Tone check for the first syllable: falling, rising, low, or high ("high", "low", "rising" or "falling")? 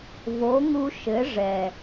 rising